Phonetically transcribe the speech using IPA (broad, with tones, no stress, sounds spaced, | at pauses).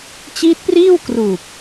t͡ɕ iː˦˥ t̚ p r iː˥˩ w k r uː˨˩ p̚